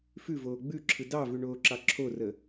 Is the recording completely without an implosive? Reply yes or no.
yes